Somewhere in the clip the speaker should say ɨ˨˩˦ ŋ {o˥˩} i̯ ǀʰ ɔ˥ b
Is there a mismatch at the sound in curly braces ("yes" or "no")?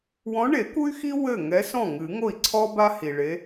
no